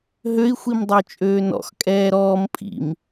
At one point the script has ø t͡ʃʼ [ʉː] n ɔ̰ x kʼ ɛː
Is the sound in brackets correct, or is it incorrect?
incorrect